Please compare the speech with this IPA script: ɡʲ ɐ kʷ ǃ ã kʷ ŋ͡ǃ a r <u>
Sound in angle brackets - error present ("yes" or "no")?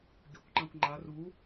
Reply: no